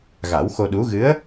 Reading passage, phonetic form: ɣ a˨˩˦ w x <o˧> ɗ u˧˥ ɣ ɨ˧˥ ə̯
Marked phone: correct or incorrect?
correct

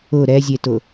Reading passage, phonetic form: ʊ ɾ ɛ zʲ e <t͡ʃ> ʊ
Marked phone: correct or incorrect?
incorrect: t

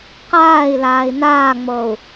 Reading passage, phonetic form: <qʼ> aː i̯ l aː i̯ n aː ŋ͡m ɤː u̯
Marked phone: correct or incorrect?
incorrect: q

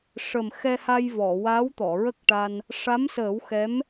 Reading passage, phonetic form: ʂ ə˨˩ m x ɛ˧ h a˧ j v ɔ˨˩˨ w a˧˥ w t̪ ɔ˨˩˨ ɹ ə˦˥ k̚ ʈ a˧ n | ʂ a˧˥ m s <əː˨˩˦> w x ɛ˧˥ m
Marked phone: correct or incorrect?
correct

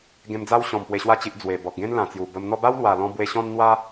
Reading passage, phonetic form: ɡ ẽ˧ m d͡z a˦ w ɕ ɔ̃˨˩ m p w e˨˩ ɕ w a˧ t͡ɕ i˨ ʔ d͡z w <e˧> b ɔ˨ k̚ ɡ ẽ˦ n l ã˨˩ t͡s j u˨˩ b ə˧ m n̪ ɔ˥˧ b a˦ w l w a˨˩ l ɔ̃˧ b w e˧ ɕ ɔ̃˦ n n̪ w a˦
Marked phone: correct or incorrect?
incorrect: e˨˩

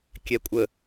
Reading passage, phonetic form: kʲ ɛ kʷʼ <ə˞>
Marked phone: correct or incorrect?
incorrect: ə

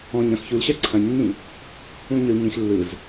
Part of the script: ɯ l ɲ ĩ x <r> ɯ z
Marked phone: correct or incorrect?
incorrect: lː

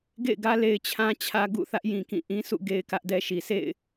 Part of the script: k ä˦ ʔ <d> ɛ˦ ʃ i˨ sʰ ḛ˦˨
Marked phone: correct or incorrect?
correct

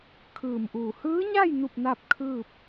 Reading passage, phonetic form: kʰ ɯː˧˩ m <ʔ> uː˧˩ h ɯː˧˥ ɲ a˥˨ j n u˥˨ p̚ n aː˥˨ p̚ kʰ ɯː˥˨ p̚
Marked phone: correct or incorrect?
correct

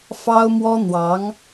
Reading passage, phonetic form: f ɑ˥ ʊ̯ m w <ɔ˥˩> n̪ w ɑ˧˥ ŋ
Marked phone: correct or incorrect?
incorrect: ɔ˥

